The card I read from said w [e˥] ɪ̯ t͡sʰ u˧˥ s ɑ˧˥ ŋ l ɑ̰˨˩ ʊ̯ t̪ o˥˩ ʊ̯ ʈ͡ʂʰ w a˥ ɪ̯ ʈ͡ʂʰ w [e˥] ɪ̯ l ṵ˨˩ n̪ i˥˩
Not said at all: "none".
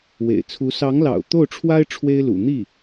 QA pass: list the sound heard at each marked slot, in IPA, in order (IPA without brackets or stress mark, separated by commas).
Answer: ḛ˨˩, e˥